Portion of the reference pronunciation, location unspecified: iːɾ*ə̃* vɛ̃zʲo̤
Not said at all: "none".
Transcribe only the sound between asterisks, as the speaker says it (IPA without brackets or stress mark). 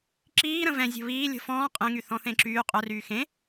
ə̃